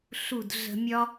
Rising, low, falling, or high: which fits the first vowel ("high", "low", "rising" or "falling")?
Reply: falling